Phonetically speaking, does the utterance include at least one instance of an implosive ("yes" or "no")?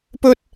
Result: no